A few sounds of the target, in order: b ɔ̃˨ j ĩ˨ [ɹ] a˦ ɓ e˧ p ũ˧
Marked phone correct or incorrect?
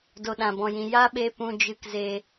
incorrect